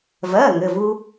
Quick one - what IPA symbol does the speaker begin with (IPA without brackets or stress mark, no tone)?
v